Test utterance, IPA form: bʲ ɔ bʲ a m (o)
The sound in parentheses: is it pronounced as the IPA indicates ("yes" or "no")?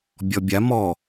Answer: no